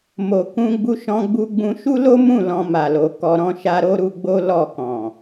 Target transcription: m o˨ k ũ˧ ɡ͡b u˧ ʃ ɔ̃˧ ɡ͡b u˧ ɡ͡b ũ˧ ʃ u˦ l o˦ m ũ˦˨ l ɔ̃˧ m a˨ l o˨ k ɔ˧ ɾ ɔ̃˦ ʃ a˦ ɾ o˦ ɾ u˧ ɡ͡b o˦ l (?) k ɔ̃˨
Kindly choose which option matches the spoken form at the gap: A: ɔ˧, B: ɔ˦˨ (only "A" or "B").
B